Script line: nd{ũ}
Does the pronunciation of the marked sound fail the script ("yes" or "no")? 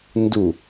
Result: yes